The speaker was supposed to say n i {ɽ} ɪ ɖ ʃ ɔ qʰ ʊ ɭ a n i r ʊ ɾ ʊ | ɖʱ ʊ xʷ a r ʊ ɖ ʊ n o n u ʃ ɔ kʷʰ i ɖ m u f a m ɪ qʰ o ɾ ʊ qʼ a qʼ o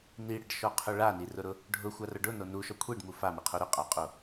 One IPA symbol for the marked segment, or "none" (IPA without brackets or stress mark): ɽ